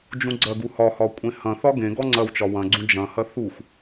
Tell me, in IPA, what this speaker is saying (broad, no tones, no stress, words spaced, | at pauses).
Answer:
d͡ʒũɡ͡ǀɐɡu hɒhɒ kʷʼẽhɐ̃θɒ ɡẽɡɔ ŋ͡ǀɐwt͡ʃɒ wɐ̃ɡ͡ǀũ d͡ʒɐ̃hɐ θux